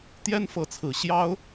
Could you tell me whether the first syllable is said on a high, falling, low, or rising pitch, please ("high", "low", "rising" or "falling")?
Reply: high